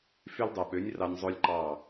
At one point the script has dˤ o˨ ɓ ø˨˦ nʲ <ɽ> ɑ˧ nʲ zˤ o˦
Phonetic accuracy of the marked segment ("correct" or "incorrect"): incorrect